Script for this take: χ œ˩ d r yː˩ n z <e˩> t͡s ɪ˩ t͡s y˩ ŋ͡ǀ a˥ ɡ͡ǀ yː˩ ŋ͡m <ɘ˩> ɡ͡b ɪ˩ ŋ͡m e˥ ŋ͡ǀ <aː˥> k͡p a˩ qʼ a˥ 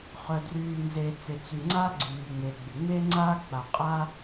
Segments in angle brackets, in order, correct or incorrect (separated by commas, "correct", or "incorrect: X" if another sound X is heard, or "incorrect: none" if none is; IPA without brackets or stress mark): correct, incorrect: e˩, correct